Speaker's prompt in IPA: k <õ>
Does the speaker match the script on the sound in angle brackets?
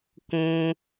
yes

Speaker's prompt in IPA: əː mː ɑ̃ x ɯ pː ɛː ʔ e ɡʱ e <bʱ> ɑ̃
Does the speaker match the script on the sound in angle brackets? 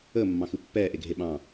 no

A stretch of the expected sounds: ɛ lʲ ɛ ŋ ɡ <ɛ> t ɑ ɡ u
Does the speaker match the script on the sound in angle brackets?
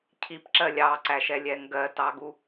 no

